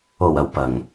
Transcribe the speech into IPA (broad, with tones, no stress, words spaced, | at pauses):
o˨˩wɐ˨˩w pɐ˨˩ŋ